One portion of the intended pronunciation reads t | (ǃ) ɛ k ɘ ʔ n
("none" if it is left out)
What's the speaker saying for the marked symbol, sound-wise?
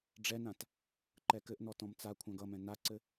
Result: ǃ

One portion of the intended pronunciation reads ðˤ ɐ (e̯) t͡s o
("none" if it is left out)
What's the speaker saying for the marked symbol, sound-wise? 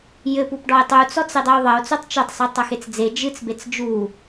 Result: o̯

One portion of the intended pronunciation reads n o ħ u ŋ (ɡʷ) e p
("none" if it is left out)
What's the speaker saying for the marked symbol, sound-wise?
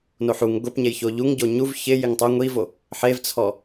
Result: ɡʷ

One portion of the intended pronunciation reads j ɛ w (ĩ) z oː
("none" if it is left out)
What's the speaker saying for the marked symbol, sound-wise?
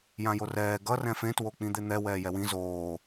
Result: ĩ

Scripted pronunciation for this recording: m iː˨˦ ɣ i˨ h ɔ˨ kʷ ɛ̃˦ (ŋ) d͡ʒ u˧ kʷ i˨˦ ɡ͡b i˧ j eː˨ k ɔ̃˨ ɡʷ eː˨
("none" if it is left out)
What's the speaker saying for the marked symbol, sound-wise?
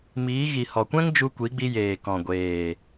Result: ŋ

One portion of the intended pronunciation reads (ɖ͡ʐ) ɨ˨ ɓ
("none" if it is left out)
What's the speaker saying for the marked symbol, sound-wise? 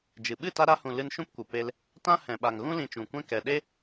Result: d͡ʒ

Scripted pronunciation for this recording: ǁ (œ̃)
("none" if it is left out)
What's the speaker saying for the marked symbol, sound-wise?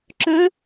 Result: œ̃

